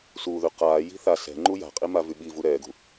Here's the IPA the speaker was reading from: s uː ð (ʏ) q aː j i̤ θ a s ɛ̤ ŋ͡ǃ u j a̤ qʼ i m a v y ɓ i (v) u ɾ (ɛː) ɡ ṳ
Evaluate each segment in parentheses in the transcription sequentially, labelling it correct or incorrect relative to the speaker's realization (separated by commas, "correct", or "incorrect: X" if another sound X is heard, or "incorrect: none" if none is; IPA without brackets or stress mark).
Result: incorrect: y, correct, correct